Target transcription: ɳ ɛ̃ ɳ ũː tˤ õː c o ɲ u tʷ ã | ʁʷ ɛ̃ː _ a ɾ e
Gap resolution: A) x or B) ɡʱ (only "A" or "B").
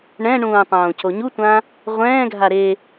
B